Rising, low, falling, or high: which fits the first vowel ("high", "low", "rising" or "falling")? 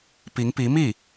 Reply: rising